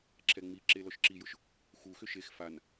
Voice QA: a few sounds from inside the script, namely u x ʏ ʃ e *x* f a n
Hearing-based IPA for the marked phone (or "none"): x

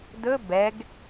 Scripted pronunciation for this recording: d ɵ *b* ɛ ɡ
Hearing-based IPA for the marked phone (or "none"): b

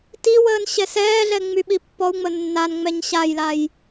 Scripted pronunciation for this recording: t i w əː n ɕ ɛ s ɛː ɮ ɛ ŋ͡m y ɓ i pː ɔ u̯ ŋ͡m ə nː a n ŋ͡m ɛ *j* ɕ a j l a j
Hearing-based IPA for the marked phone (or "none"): ɲ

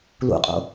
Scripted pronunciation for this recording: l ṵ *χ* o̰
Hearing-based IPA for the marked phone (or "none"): qʼ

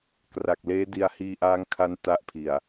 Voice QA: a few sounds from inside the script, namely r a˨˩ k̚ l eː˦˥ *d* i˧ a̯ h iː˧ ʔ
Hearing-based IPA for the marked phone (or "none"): d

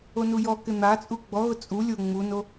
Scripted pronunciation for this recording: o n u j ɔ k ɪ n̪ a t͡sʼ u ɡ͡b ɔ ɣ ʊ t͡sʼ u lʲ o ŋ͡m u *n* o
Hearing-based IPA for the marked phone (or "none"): n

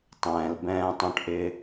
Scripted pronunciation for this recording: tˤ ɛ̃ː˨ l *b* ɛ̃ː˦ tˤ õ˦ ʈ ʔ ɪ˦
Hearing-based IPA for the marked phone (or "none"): b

